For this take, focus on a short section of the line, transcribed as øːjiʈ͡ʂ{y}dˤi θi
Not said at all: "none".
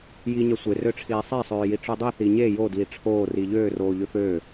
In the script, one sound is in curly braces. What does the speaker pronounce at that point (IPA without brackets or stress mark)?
y